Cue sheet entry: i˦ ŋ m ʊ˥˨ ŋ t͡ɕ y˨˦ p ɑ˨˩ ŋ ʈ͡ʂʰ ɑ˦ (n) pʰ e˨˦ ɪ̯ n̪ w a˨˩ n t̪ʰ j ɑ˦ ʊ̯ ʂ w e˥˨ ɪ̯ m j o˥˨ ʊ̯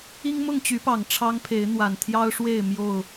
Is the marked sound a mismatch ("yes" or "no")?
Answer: yes